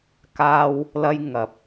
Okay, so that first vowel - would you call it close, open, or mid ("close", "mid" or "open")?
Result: open